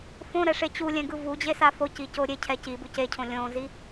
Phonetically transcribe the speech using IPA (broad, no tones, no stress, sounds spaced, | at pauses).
f õ ɾ ɛ ʂ e t͡ɕ u lʲ ɛ̃ ɡ ɯ v u d͡ʑ e s a f o c i c o ɾʲ e cʰ ɛ c i b u c e cʰ õ lʲ õ z i